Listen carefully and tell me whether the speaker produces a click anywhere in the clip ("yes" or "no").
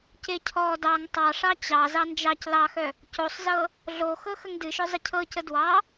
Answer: no